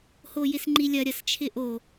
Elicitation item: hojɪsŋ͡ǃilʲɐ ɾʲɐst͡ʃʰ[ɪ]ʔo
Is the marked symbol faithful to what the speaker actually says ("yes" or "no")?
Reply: yes